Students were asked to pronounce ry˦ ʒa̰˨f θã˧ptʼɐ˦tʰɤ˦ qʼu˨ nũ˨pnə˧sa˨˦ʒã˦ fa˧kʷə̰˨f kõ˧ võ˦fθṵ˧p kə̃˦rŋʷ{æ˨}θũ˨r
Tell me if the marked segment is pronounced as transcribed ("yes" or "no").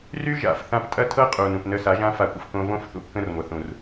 no